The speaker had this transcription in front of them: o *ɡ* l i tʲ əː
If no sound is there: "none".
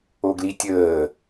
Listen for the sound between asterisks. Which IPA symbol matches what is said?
ɡ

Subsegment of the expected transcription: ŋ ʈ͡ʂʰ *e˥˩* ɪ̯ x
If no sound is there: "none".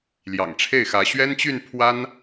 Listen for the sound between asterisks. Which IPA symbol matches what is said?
e˥˩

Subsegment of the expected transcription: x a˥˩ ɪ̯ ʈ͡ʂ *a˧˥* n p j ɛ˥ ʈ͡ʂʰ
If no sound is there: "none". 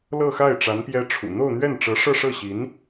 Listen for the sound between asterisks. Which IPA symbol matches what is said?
a˧˥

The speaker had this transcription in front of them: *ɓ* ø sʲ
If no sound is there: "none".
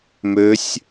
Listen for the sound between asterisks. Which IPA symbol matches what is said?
m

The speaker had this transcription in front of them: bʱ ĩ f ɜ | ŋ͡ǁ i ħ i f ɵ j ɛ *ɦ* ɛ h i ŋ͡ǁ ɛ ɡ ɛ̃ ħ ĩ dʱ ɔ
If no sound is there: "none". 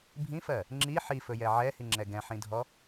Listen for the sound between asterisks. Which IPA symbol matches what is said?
ʕ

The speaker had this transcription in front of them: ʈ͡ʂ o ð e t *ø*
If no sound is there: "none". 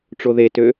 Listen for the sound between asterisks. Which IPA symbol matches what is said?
ø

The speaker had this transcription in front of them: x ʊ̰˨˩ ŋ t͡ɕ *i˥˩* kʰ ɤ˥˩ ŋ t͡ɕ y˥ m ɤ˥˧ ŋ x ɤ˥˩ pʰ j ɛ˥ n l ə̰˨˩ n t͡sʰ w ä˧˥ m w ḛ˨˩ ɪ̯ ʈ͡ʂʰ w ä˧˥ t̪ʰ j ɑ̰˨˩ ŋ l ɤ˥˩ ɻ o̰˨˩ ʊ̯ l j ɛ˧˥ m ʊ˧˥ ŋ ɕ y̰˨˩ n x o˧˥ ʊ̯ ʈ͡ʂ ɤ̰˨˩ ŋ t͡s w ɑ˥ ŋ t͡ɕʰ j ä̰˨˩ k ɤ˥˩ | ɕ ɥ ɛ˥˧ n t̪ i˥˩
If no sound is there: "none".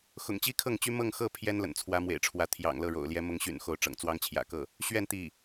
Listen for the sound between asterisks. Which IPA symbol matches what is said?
i˥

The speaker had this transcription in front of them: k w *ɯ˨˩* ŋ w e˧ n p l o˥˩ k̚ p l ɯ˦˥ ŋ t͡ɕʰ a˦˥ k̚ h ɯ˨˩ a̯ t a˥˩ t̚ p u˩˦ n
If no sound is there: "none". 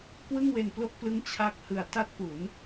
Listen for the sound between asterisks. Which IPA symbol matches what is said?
ɯ˥˩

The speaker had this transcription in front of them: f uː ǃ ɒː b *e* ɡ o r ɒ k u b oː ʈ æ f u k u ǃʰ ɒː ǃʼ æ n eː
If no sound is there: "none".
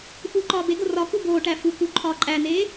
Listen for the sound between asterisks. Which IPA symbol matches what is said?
e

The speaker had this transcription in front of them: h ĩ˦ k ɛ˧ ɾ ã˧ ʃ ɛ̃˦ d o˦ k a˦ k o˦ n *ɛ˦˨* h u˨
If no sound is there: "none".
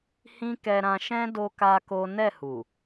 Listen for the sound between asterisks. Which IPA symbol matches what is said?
ɛ˦˨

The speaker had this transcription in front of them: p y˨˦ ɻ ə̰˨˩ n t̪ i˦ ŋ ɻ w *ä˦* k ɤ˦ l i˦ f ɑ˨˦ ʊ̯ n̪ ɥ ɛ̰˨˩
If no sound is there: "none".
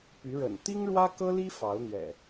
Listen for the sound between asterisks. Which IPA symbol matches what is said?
ä˦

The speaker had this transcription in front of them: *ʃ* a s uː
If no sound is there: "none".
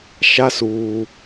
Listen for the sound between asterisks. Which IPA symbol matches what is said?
ʃ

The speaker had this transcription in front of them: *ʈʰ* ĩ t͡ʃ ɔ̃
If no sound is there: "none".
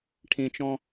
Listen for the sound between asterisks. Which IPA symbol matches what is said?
ʈʰ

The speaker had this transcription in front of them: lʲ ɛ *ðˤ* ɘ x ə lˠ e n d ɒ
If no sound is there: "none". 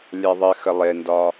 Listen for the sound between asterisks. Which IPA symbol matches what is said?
ðˤ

